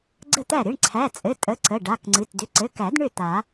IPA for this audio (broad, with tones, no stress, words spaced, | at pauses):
ɡ͡ǀə˥˩t̪æ˥˩ ɾɨ˩˧˩ɳǀʰæ˩˧˩t͡sʼɘ˩˧˩ tʼə˩˧˩ǀə˩˧˩ ɖa˩˧˩kŋ͡ǀɨ˩˧˩t dʏ˩˧˩ǀɘ˩˧˩kæ˨˩˦d ɳʏ˥˩ t̪a˨˩˦